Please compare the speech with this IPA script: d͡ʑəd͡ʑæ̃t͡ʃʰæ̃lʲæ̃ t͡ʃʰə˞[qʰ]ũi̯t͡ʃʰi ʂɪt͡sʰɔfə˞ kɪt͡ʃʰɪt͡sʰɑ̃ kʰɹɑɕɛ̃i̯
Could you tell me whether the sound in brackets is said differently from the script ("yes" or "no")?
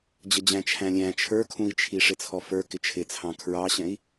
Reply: yes